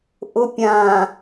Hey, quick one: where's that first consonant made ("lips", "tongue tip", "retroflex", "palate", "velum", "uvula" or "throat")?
throat